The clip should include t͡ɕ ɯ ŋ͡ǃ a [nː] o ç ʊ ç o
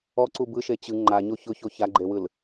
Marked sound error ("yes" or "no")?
yes